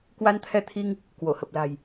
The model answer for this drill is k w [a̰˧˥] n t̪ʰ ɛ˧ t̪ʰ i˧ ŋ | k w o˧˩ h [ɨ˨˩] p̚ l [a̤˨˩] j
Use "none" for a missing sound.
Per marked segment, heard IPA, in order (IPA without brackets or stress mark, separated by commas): a˧, ə˨˩, a̤˨˩